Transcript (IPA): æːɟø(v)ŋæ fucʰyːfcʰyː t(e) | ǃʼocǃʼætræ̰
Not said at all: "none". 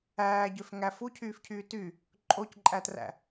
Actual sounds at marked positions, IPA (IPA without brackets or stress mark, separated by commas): f, y